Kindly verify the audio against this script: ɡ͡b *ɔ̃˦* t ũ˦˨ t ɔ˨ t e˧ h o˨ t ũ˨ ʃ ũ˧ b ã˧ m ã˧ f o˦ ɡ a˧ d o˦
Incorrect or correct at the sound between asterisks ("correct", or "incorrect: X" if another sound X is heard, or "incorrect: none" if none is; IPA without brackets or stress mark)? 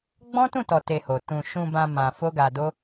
correct